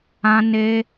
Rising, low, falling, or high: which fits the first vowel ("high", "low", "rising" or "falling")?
high